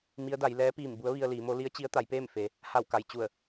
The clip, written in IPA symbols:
m i˧˥ ə̯ d a˩˧ j l ɛː˧˥ p iː˧˩ m b u˧˥ ə̯ ʋ i˧ ə̯ l iː˩˧ m o˧˥ l i˧˥ ə̯ t͡ɕ i˧˥ ə̯ t̪ a˩˧ j p eː˥˨ m f e˩ | h a˧˩ w k a˩ j t͡ɕ u˧˩ ə̯

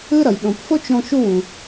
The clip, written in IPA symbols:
ɯ˥ ɾ ʌ˩ j ɗ õ˩ p f o˥ t͡ʃ ɾ õ˧ ʃ u˧ w ũ˩

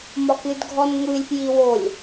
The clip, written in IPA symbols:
m ɒ k ɨ d ɡʱ ɔ n ŋʷ ɨ lʲ p j i w o lʲ

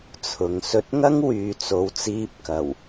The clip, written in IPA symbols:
t͡sʰ ʊ˨ ŋ s ɵ˧ t̚ ŋ ɐ˥ ŋ w yː˨ t͡s o˨˧ w t͡s iː˧ p̚ k ɐ˨˩ w

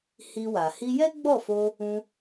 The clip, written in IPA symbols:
h i˧ w a˨ h i˧ j ɛ˦ ɡ͡b ɔ˦˨ f o˧ | ũ˧

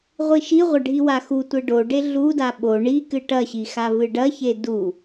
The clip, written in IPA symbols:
ʁʷ i ʃ i ʁʷ ɐ ɖʱ i w a x u tʷ e ɖ o ɖ e ɮ u d a ɓ o ɳ i k ɨ ʈ ɐ ɕ i x a v ɨ ɖ ɐ ç e d u

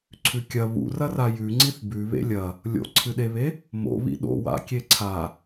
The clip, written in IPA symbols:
ǀʰ ʉ kʲ ɐ β ṵ r ɐ r a j ʉ ŋ͡ǀ i θ b ʉ β ḛ lʲ ɐ | lʲ o̰ ǀʰ ɨ ɗ e β e | m o̰ β ḭ ɗ o̰ w a̰ kʲ e ǀʰ a

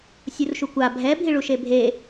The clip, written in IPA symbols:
sʲ u r ʃ u kʷ a bʱ ɛ bʱ i ɭ u ʃ e bʱ e

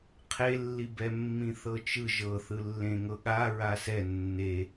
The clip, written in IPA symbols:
qʰ e lː i b ɛ mː ĩ θ ɤ t͡ʃ ɯ ʒ ɤ θ ɯ lː ẽ ŋ ɤ ɠ a ɹ a s ɛ nː e

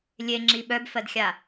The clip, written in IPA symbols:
lʲ e ŋ͡ǁ i ɓ œ b f ɜ d xʲ a

